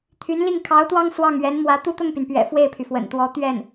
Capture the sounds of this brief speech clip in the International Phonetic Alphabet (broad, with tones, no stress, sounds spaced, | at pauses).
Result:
t̪ʰ y˧˥ n l i˥˩ ŋ kʰ ɑ˧˥ ʊ̯ t̪ w ɑ˥ ŋ s w ɑ˥˩ ŋ ɥ ɛ˧˥ n m w ä˧˥ t̪ u˥˧ t̪ ʊ˥˩ ŋ p y˩ n p ɥ ɛ̰˨˩ f w e˥˩ ɪ̯ pʰ y˩ f w ə̰˨˩ n t̪ w ɔ˧˥ t̪ ɥ ɛ˥˩ n